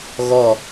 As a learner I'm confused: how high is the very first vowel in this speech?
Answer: mid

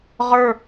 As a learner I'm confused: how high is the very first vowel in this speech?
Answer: mid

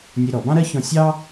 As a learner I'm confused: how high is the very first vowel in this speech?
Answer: mid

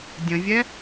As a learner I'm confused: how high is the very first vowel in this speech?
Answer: mid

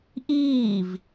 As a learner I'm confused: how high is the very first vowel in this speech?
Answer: high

